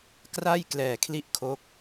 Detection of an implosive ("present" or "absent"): absent